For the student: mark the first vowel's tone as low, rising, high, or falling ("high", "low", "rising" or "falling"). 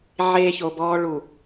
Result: high